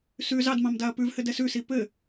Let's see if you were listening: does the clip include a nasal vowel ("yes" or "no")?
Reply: yes